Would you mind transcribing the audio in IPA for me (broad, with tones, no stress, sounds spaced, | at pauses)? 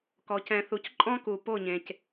k ɔ˨˦ c ɛ̃˧ θ u˧ c ǃʼ ɔ̃˦ k u˨ p o˦˨ ɲ ẽ˨ c